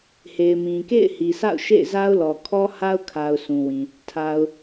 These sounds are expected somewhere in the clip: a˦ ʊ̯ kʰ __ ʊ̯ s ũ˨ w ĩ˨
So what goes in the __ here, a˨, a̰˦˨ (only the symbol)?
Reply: a˨